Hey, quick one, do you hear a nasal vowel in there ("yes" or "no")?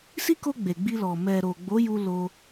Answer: no